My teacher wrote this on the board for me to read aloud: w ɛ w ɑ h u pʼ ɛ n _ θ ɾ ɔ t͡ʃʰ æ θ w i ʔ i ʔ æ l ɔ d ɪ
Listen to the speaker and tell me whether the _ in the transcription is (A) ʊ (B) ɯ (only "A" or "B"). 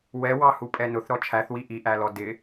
A